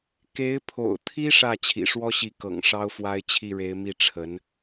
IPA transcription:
k e˧˥ ɪ̯ pʰ o̰˨˩ ʊ̯ t̪ʰ i˥ ʂ ä˥˩ t͡ɕʰ ḭ˨˩ ʂ w ɔ˥ ɕ i˧˥ k ɤ̰˨˩ ŋ ʂ ɑ˥ ʊ̯ f w a˥ ɪ̯ t͡ɕʰ i˥˩ ɻ e˧˥ ɪ̯ m i˥˩ ʈ͡ʂʰ ə˧˥ n

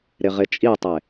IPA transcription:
ɾ ɪ ʁ ɪ t͡ʃʼ i tˤ ɪ

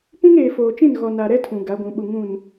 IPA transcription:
p ũ˦ ŋ eː˨ f oː˨ t͡ʃ ĩ˦˨ n ɣ ɔ˨ n a˨ ɾ ɛ˦ tʰ ũ˨ ɡ a˨˦ ɡʷ ũ˨ ɓ u˨ ŋ ũ˦˨ n

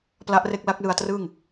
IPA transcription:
p l a˦˥ ʔ r e˦˥ k̚ l a˦˥ k̚ l ɯ˧ a̯ t r ɯ˥˩ ŋ

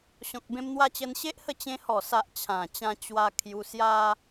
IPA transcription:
ɕ ɔ̃˨ k̚ b ẽ˧ m n̪ w a˧ t͡ɕ ə˧ n ɕ e˦ ʔ h ə˥˧ t͡ɕ ẽ˧ h ɔ˨˩ s a˨ ʔ t͡ɕʰ ã˨˩ t͡ɕ ã˧ t͡ɕ w a˧ kʰ j u˧ s j a˧

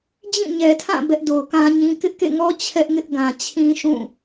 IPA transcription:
d͡ʑ ĩ˦˨ ɲ ɛ˨ tʰ ã˦˨ b ɛ˦ ʔ d o˨ ʊ̯ k ã˦ ɲ ĩ˦ k ɪ˦ ʔ k ḛ˦˨ ŋ ɔ˦ t͡ɕʰ ɛ˦ ʔ ŋ ɪ˦ ʔ ɡ ã˨ t͡ɕʰ ĩ˦ ʃ ũ˦˨

